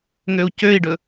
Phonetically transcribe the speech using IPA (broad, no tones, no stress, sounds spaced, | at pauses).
ŋ ø u̯ c ø i̯ ɖ ɵ